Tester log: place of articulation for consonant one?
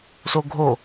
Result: alveolar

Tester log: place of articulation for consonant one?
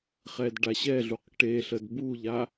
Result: uvular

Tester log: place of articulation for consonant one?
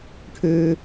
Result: retroflex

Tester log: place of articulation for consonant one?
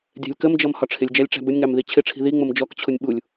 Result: alveolar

